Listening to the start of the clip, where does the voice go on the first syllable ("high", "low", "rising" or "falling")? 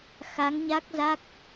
rising